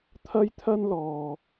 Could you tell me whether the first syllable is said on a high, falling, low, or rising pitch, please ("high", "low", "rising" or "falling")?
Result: high